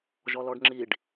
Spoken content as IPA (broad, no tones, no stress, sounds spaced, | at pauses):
ʒ ɔ l ɔ ɖ ŋ͡ǁ i ɖ